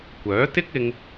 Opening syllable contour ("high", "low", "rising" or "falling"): rising